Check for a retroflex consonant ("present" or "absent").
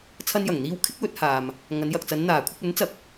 absent